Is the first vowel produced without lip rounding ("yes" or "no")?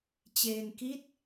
yes